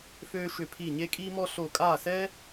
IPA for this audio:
f øː˥ ʃ ʏ˥˧ pʰ i˥˧ ɲ e˥ kʼ iː˥ m ɔ˥ ɬ o˥˧ kʼ aː˥˧ s ɛ˥

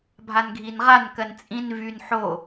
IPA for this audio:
bʱ a n ɡʱ i n ʁ a n k ɜ n t͡sʼ ĩ n v y n ħ o

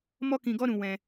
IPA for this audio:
m ɔ˦ k ĩ˧ ɡ ɔ˦ ɾ ũ˧ w ɛ̃˧

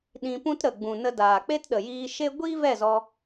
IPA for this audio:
ɗ ĩ˧ p ũ˦ t ɾ ə˨ ɡ͡b ũ˨ n ə˧ d aː˨ k͡p e˦ t ɗ ə˨ j iː˧ ʃ e˦ ɡʷ iː˦ v ɛ˦˨ z ɔ˧

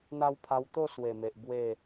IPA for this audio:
n̪ a˧ w pʰ a˧ w t̪ o˥˧ s w e˨˩ m e˨ ʔ b w e˥˧

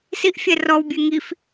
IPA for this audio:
s i ʔ fʲ ɛ r ɔ w bʲ e ŋ i f

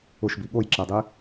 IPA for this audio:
ʊ ʃ b i ɠ o j ǁ ɛ dˤ i

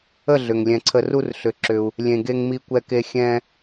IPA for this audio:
ə˦˨ ɮ ʏ˨ ŋ lʲ ɛ̃˧ ǀʰ ə˦ r u˦ r ɬ ʏ˦˨ ǁ ʏ˦ u̯ | lʲ ẽ˧ ɡ e˦ ŋ m i˦ kʷ ɛ˦ k e˦ xʲ ɛ̃˦

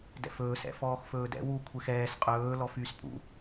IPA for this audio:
d ɛ̰ f ɵː s ɛ̰ f ɔː x f ɵː d ɛ̰ w u kʷʰ ɛ x ɛː s qʼ ɵː l ɔ f y s pʼ ṵ

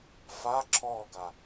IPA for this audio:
f a ǁʰ ɔː ɡ a

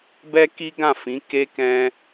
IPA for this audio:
b ɛ˦ k i˦ ɡ ã˦˨ f ĩ˨˦ k e˦ k ɛ̃˦

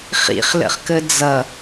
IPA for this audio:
χ ḭ χ l ə̰ χ k ə d͡z ʌ

